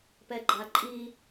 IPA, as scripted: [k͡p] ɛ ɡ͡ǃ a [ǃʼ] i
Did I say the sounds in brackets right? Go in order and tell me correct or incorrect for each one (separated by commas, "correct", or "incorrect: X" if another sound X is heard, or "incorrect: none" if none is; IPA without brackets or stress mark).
incorrect: p, correct